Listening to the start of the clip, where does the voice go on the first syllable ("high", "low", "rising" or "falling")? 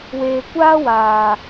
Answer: low